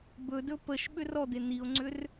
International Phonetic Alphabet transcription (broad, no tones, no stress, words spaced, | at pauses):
bɵdɵ pəʃ ɓʏrɔd̪e n̪io̯ŋ͡ǀʏr